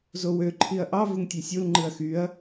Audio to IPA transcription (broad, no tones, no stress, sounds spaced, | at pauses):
z o w ø ǃʰ i ɐ̯ ʔ ɑ v ɯ ŋ tʲ e sʲ u l ŋ͡ǃ ɯ ɐ̯ x y ɐ̯